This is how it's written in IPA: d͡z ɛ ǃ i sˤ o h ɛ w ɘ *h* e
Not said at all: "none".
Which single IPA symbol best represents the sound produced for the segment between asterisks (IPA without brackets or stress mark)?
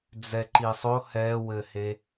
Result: h